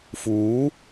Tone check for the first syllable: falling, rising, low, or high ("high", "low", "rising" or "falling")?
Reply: rising